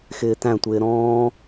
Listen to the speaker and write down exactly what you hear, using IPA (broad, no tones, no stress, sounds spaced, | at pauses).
x ɪː t æ̃ tʷ ɪː ɾ ɔ̃ː